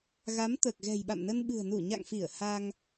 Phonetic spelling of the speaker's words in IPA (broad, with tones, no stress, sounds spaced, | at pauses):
ɣ a˨˦ m t̪ əː˨˩ k̚ ɣ ɛ̤˨˩ j ɓ a̰˧˨ m n ə˧ n ɓ ɨ̤˨˩ ə̯ n u˧˩ ɲ a̰˧˨ ŋ f i˧˩ ə̯ h a˧ ŋ